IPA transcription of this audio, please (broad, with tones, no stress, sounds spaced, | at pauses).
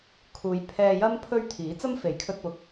kʰ uː˨˧ j pʰ ɛː˧ j ɐ˥ m pʰ ɵ˥ ɥ t̪ʰ iː˨˥ t͡s ɐ˥ m f e˨˥ j kʰ ɵ˧ t̚ p ʊ˨ k̚